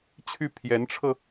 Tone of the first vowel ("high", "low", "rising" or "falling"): falling